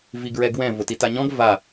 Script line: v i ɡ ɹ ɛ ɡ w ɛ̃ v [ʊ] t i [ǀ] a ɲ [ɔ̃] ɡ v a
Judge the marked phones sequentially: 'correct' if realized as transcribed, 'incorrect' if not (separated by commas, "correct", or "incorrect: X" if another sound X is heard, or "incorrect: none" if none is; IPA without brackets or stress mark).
correct, incorrect: t, correct